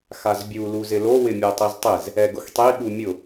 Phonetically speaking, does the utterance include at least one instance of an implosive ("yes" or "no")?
yes